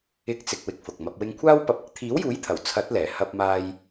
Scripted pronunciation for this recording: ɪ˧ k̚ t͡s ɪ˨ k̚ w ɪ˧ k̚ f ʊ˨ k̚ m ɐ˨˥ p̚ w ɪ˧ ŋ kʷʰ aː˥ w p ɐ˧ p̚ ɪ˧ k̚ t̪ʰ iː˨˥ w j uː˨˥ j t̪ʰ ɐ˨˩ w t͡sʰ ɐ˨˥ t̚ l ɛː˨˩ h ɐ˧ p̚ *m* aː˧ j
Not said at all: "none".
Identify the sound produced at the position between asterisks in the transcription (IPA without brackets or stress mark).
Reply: m